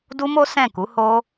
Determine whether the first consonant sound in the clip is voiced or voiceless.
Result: voiced